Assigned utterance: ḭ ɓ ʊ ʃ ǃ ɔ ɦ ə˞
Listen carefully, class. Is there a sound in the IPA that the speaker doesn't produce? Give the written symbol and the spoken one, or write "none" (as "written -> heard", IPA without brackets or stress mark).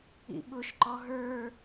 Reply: none